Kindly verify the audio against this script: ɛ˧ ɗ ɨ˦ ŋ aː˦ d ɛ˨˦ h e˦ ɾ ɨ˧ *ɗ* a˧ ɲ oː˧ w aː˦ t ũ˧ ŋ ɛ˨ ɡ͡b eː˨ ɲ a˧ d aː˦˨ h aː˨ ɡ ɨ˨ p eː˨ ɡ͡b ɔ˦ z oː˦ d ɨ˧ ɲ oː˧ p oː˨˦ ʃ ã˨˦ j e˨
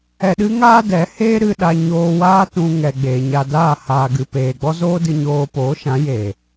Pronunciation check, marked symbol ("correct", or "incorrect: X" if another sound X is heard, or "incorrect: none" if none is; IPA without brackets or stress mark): correct